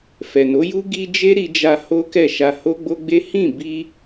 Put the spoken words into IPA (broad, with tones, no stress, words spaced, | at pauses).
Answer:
fɛ˨no˨˦ ju˦ ɡi˧ d͡ʒe˦ɾi˧d͡ʒa˧ ho˦kɛ˦˨ ʃa˧ho˦ɡ͡bo˦ɡ͡be˦ hĩ˦˨bi˧